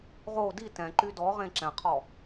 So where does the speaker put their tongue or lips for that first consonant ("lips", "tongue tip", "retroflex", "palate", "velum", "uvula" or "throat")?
uvula